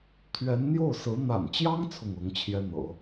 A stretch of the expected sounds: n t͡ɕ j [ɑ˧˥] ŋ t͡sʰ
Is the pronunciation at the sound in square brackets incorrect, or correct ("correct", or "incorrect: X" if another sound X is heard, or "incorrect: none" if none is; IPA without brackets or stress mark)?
incorrect: ɑ˥